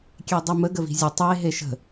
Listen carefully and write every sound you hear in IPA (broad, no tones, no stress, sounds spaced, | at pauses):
kʲ e dˤ i m ə ɡ ə v i̤ zʲ ə tˤ e ɦ e ʃ ə̤